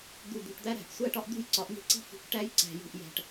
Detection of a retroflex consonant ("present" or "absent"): present